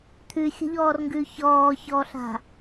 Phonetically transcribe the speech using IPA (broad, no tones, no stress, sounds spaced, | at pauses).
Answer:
t̪ʰ ʉ xʲ ə̤ ʎ ɔː r ŋ ɡ ʉ ç ɔː ç ɔː ɬ a̤